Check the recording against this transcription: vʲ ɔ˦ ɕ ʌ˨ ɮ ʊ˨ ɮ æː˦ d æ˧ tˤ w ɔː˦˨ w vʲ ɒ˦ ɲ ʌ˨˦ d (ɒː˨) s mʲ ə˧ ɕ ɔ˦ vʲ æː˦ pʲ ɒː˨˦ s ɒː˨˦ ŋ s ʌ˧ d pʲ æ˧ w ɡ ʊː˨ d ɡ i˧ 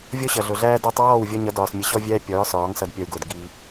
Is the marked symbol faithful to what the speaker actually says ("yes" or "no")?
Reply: yes